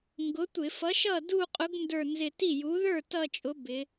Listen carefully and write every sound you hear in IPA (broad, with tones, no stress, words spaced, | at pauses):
ŋɡʊ˨˥tʷɪ˧˩˧ fʌ˨˥ʃʌ˥˩ du˥˧ qʼʊ˨˥ɡndə˞˧˩nzɪ˧˩ ti˥˩ju˨˥ ðə˞˥˩ tʌ˥˧t͡ʃʼʊ˨˥bɪ˩˧